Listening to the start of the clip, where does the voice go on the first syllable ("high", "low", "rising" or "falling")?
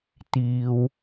low